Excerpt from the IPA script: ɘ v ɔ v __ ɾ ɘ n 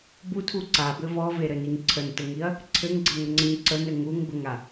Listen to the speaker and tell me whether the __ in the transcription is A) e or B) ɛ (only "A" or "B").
A